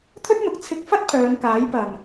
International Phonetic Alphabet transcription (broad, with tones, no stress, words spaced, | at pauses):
t̪ʰɵ˥t̚n̪ʊ˨k̚ t͡sʰɪ˧k̚fɐ˥t̚ pʰœː˨˧nkaː˨˥j pɐ˨˩m